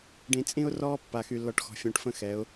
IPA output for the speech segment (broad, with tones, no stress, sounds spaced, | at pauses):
ɖ ĩ˨ t͡sʼ ĩ˦ ʊ̯ r ɔː˦ pː a˨ x y˨ lː ɔ˨ ʈ x ɔ̤˨ fʲ õ˨ ʈ f ə̃˦ x ɛ˨˦ ʊ̯